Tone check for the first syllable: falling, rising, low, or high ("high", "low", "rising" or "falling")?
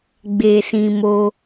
low